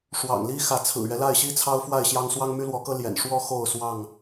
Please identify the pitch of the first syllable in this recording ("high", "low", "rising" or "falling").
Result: low